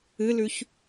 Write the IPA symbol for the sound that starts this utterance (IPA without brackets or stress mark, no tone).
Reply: ɨ